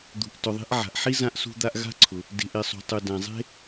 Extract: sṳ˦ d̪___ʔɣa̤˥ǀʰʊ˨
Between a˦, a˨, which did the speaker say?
a˦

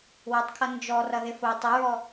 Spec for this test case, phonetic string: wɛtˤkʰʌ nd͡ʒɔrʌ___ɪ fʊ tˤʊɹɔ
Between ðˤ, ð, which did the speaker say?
ð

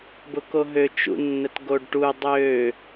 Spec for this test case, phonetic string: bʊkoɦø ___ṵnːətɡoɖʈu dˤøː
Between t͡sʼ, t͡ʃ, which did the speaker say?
t͡ʃ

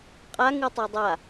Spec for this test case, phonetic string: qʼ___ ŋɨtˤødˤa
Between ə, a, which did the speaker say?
a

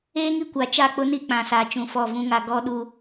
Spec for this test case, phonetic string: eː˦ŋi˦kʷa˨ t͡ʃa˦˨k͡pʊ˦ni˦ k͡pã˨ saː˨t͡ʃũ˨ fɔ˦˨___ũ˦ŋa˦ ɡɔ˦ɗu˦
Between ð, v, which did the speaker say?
v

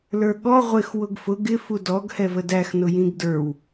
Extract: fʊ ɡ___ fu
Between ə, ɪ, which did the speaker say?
ɪ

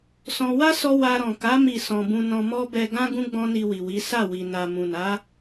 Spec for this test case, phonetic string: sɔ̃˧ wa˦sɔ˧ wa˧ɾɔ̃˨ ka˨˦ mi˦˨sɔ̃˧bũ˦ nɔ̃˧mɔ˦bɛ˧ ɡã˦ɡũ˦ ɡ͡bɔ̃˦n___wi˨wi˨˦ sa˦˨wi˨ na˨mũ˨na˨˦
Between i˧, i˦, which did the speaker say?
i˧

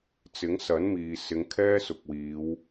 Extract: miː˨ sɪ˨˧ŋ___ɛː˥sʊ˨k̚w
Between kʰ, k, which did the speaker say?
kʰ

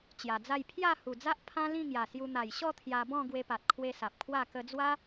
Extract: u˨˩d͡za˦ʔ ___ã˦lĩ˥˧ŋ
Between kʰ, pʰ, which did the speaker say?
pʰ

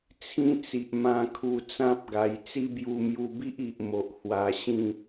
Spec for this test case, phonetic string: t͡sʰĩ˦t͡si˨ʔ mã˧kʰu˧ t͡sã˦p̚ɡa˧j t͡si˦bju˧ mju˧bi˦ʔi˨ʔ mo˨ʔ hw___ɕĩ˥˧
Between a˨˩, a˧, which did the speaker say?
a˧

